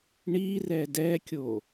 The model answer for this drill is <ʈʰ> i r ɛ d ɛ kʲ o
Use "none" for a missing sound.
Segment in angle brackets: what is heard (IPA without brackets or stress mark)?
ɳ